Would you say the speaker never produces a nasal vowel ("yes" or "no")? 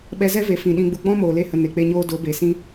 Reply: no